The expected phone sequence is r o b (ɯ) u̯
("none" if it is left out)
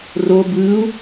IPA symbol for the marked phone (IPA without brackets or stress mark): ɯ